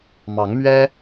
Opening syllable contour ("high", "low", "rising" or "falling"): rising